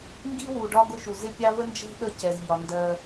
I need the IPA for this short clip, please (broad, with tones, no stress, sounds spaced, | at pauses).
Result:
ŋ ɡ i˥ w u˩ ɖ ɒ˥ ɡ ʊ˥ ʃ u˩ z ɪ˥ pʲ ɑ˥ v ə˥ n d͡ʒ ɛ̤˥ ɗ ə˦ c ɛ˩ z ʎ ɒ˩ n d ɜ˨